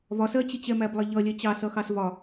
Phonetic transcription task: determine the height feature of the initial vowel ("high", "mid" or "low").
low